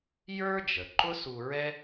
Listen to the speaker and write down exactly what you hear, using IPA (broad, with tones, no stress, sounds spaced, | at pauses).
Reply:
j ə˞˥ d͡ʒ ə˩ ǃ ʊ˥ s u˧ ɹ ɛ˥